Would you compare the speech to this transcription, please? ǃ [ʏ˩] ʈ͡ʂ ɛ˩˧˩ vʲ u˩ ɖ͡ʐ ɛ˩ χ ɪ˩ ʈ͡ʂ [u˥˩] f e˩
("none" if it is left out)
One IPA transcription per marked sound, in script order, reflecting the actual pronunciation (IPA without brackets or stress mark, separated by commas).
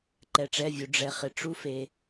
ɛ˩, u˧